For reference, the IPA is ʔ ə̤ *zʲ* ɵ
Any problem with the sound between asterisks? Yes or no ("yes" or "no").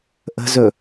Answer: yes